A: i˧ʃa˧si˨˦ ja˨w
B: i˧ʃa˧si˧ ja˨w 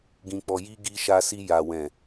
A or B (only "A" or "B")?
B